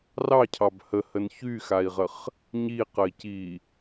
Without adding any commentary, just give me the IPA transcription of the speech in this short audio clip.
r ɑ cʰ ɑ b h ə h ə n ç y x a i̯ ʁ ə χ | ɲ i q ə i̯ c i

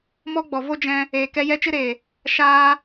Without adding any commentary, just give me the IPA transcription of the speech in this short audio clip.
m ɔ˦ ɡ͡b ɔ˨ v o˦ d͡ʒ ɛ̃˧ | eː˨ k ɛ˧ j ɛ˧ t͡ʃ ɨ˧ ɾ eː˨ | ʃ aː˧

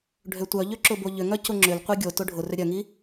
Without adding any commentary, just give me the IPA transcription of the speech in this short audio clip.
ɖʱ ø tʷ œ ʎ ø ǁ ʊ b o ʎ ʏ ŋ œ c ʊ ŋ͡ǁ ʏ l qʷ i ɡʲ o t ʊ ɖʱ ʊ r ʏ ɾʲ œ ŋ i

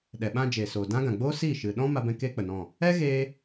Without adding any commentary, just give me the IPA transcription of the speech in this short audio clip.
ɗ ɛ˨ ɓ ã˧ d͡ʒ eː˨ s oː˨ d ã˦ ɡ ã˨ ɡ͡b oː˦ s iː˦˨ ʃ ɨ˨ ɗ ɔ̃˦ m a˦ b ɛ̃˦ k eː˦ k͡p ə˨ n ɔ̃˦˨ | ɛ˦ ɣ eː˦

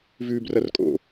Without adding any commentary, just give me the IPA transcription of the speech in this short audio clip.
v ʉː b r ɐ r kʼ o̰

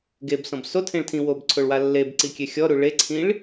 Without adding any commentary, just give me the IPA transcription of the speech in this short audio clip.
ɡ e b s ɔ̃ b s o tʰ ẽ ɭ tʰ ĩ w o b ǀʰ o ɭ w a lː e b ǀ i kʲ e xʲ ɔ ɾ u ɭ e ǀʰ ĩ ɭ

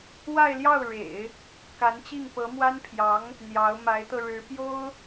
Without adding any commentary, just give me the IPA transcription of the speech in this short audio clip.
w a˥˧ ɪ̯ l j ɑ˥˩ ʊ̯ ɻ ḛ˨˩˦ ɪ̯ | k a˧˥ n t͡ɕ i˥˩ ŋ p ɤ˧˥ m w a˥ n pʰ j ɑ˧˥ ŋ | n̪ j ɑ˧˥ ʊ̯ m a˧˥ ɪ̯ t̪ ɤ˧ ɻ ɻ̩˧˥ p j o˥ ʊ̯

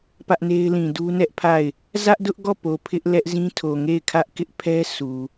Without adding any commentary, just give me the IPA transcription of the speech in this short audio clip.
p ä˦ ʔ n e˦ ɪ̯ l ĩ˨ d u˦ n ɛ˦ ʔ pʰ a˦˨ ɪ̯ | z ä˦ ʔ d ʊ˦ ʔ ɡ ɔ˦˨ p o˨ pʰ ɪ˦ ʔ l ɛ˦ ʔ z ĩ˦ tʰ o˨ ŋ e˦˨ ɪ̯ kʰ ä˦ ʔ k ɪ˦ ʔ pʰ ɛ˦ s u˨

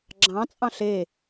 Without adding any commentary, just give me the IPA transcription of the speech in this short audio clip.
ɡ͡ǁ ɑ̃ t͡sʼ ɑ̃ ɬ e

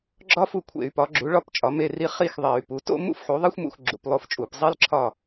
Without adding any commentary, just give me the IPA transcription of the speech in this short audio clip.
ɡ͡ǁ ɒ˥ f u˥˨ kʷʰ ḛ˧˩˧ y̯ p ɒ˩˥ ɡ͡ǁ u˩˥ ɭ ɒ˥˨ p t͡ʃʼ ɒ˩˥ m e˥˨ r i˥˨ χ i˥˨ x ðˤ e˧˩˧ y̯ p u˩˥ t o̰˥ m ṵ˥ f ħ u˩˥ ðˤ e˥ xʷ m ṵ˧˩˧ x ɡ͡ǁ ṵ˧˩˧ p lˠ o˥ f t͡ʃʼ u˧˩˧ p zˤ i˥ l ǁʰ ɒ˥˨

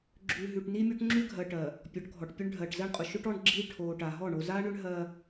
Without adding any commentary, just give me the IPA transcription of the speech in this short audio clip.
ɡ͡ǁ ʉ˨ ɦ ʉ˨ ʈ n i˦ mʲ o˦ ʈ ŋ͡ǁ ʉ˦ ɡʱ ɜ˨ ʈ ɜ˨ | pʲ ɔ˨˦ ʈ ɡʱ ɔ˨ ʈ pʲ ʉ˦ ɳ ɖʱ ɜ˨ ʈ z ɜ˦ ɳ qʼ ʊ˨ ʃ ʏ˦ ʈ ɔ˦ ɳ ɡ͡ǁ i˦ ʈʰ o˨ ʈ a˨ ɦ ɔ˦˨ ɳ o˨ z a˦ ɳ ʏ˦ ɳ ɦ ɜ˦

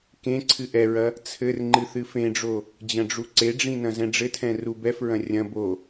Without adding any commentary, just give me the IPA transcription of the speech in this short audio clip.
k ẽ ǀʰ ɨ ʔ ɛ ɹ ɐ | t͡sʰ ɘ r ŋ͡ǃ ɨ θ ɨ f ẽ ɖ͡ʐ o | d͡ʑ ɐ̃ ɖ͡ʐ u ǀ e ɖ͡ʐ ĩ n ɐ̃ z ɛ̃ ɖ͡ʐ ɘ tʰ ɛ̃ r u b ɛ f ɹ ɐ̃ rʲ ɐ̃ b o

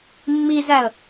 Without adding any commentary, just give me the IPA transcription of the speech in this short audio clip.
mː i z æ ə̯

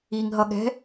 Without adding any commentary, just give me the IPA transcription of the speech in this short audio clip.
i ŋ ɦ ʌ ɠ ɛ̤

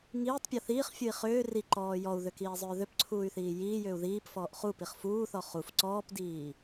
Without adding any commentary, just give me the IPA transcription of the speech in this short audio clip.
ŋ iː tˤ pʲ ɔ θ iː χ fʲ u i̯ χ ʏː r i ǃ ɔː j ɔ u̯ ð ʏ k iː zˤ ʏː ð ʏ p ǀʰ uː y̯ θ iː j iː j ʏː u̯ ð iː p f ɔː ʔ χ u p i χ f uː θ ɔ χ u f ǀ ɔː p d iː

